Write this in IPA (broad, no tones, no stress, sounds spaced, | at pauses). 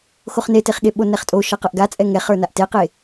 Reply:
x o χ n e t e χ ɠ e ɓ o n ɛ χ tʼ o ʃ ʌ q ʌ ʔ ɡ a t͡sʼ ɛ ŋ ɛ χ ə˞ n a ʔ t e q e